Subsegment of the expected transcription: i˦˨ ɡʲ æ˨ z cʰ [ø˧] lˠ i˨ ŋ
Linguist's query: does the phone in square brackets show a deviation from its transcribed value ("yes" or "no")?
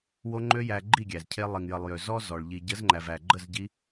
yes